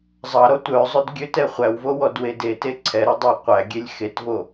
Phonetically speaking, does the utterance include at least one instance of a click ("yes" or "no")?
yes